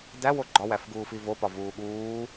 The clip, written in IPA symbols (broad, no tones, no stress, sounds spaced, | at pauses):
d æ w o ɡ͡ǃ ɒ w æ f ɡ uː f i v o p ɒ v uː ɠ uː